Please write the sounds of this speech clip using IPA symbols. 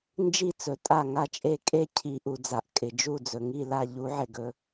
n d͡ʒ i˥˨ t͡s ɵ˨˩˦ tʼ a˥˨ ŋ a˥˨ t͡ʃʼ e˥˨ kʼ e˥˨ cʰ i˨˩˦ ʔ u˩ d͡z a˩ ʔ kʼ ɪ˩ d͡ʒ u˥˨ d͡z ɵ˩ ŋ i˥˨ l a˥˨ ʎ u˨˩˦ ʕ ɪ˩ ɡ ɵ˩

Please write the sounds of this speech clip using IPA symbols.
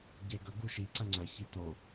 ɟ e ɡ ɵ ɡ u ʃ i ǀ ɐ ŋ͡ǀ ɐ ç i t o

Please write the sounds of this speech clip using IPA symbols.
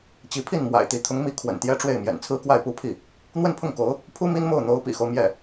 t͡ɕ i˧˥ pʰ i˥˩ n m w a̰˨˩ ɪ̯ t̪ i˧˥ t̪ʰ ʊ˧˥ ŋ m i˧˥ kʰ w ə̰˨˩ n t̪ j ɛ˥ ʈ͡ʂ w e˥˩ ɪ̯ m j ɛ̰˨˩ n t͡sʰ ɹ̩˥ k w a˥˩ ɪ̯ p u˥ pʰ i˥˩ | n̪ w ə˥˧ n pʰ ʊ˥˩ ŋ k o˧˥ ʊ̯ | pʰ u˥ m i˥ n m o˥˩ ʊ̯ n̪ o˧˥ ʊ̯ p ḭ˨˩ x o˦ ʊ̯ m j ɛ˥˩

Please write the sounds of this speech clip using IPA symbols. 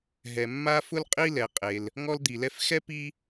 ɦ ɛ˩ mː a˥ f ʊ˥ l qʼ i˥ l ɛ˩ qʼ e˩ l | ŋ ɔ˥ l d̪ i˩ l ɛ˥ f x ɛ˥ p i˥

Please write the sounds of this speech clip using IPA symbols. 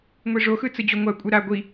ŋʷ i ʐ o x ɯ t͡s ɯ d͡ʑ o ŋʷ a kʷʼ ɯ ɾ a ɡʷ i

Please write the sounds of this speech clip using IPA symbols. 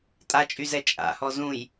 tʼ a t͡ʃʼ y z ɛ t͡ʃʼ a̰ h ɔ z ũ j

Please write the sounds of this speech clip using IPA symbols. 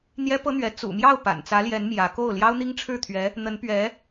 n̪ j ɛ˥ p ɤ˥ n̪ ɥ ɛ˧˥ t͡s ṵ˨˩ m j ɑ˥˩ ʊ̯ p a̰˨˩ n t͡s ä˧˥ l j ɛ˧˥ n m j ä˧˥ k o˥˩ ʊ̯ l j ɑ˥ ʊ̯ n̪ i˥ ŋ ʈ͡ʂʰ ɻ̩˥˩ t̪ʰ ɥ ɛ˧˥ | n̪ ə˧˥ n p ɥ ɛ˧˥

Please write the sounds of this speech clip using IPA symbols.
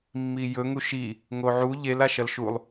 mː i j ɵ ŋ u ʃ i | ŋ o ʕ u ʎ e l a ʃ ɐ l ʃ u lˠ

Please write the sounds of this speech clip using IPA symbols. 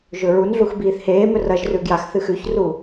ʒ ɵ ɹ u n ɮ u x b iː θ h eː m ɵ r ɐ ʒ r ʉ ɡ j a x θ ɨ x ʉ ç r u

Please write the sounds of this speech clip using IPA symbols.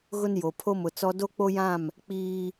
ɣ ʊ˦ n j o˨ pʰ o˦ m ʊ˨ t͡s ɔ˦ d o˦ k͡p o˦ j ã˦˨ m | k͡p iː˦

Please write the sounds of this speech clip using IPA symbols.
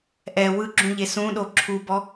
ʔ ɛ w ɯ ɡ͡ǁ ũ ʎ e s ũ ɗ o ǁʰ u b ɔ

